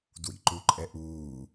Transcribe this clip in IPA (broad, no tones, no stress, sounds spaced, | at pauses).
d w ḭ ǃ u ǃʼ ɛ ʔ uː